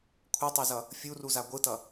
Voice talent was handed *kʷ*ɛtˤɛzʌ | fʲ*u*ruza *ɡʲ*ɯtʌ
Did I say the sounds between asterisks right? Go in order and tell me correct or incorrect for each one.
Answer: incorrect: kʷʰ, correct, incorrect: ɡʷ

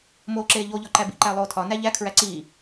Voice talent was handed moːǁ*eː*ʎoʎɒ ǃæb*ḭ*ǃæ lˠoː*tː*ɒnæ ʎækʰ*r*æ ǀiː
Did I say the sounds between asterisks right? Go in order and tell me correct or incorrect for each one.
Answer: correct, correct, incorrect: tʰ, incorrect: ɹ

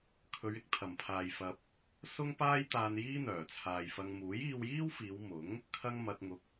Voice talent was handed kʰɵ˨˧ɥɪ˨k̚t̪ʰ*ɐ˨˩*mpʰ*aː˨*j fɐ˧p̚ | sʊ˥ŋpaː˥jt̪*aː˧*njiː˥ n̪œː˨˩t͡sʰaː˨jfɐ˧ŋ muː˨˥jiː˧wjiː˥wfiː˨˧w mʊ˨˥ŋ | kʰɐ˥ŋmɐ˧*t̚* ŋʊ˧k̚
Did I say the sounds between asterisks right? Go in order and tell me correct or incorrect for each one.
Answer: correct, correct, correct, correct

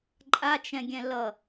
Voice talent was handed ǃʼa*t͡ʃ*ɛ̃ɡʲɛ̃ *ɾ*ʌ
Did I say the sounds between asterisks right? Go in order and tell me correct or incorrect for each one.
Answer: correct, incorrect: l

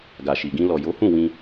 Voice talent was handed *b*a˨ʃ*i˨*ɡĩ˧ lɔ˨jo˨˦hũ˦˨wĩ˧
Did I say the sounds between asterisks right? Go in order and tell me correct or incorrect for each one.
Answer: incorrect: ɡ, correct

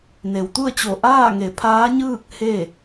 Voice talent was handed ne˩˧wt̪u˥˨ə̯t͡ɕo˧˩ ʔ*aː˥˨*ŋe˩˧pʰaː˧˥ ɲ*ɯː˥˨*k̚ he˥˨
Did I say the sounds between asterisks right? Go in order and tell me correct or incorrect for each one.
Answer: correct, correct

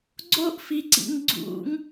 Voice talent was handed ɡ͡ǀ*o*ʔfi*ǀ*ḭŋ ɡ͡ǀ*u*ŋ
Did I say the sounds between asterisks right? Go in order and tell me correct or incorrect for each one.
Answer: correct, correct, incorrect: ṵ

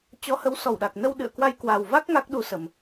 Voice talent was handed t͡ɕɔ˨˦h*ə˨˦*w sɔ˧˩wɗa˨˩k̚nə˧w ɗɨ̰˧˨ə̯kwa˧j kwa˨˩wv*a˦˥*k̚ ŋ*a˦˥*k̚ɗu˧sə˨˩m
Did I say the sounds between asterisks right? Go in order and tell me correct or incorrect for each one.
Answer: correct, correct, correct

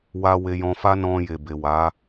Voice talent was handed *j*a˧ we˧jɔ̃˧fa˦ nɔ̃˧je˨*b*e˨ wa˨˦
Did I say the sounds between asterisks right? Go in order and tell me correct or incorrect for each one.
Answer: incorrect: w, correct

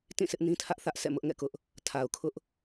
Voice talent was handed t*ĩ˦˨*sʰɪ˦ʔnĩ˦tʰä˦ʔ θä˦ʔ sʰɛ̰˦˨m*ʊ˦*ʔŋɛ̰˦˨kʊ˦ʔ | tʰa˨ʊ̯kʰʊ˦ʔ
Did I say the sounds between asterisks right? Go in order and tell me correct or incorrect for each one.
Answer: correct, correct

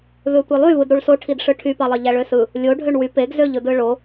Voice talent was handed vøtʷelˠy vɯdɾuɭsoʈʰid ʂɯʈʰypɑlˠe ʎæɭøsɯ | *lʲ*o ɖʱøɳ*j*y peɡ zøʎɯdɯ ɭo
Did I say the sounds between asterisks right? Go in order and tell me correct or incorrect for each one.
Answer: correct, incorrect: w

